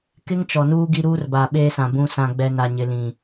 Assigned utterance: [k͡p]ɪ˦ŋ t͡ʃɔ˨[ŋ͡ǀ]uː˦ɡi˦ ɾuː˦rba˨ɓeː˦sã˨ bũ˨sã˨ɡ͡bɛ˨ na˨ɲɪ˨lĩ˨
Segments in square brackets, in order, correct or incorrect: incorrect: k, incorrect: n

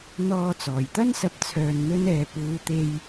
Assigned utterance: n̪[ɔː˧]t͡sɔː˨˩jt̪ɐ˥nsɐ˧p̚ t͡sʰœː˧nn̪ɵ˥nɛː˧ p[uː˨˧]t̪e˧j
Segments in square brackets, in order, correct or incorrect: correct, correct

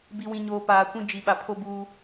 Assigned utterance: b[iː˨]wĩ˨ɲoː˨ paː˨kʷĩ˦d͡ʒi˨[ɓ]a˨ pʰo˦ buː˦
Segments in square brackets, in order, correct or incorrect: incorrect: i˨, correct

